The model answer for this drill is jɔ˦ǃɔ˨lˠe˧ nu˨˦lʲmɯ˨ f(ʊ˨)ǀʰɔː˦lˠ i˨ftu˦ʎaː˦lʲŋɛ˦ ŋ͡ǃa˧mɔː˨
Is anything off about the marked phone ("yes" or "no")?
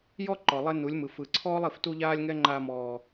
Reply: yes